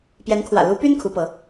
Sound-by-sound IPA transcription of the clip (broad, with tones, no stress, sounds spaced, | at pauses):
p j ɛ˧˥ n kʰ w ä̰˨˩ l u˧˥ p y˥ n kʰ u˧˥ p ɤ˧˥